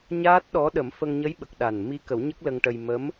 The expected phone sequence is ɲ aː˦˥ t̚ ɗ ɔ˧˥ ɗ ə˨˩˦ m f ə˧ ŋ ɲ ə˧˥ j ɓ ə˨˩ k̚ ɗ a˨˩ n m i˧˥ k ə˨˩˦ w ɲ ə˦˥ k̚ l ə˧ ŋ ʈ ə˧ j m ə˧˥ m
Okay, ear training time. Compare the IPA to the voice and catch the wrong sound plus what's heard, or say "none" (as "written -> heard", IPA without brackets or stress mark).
none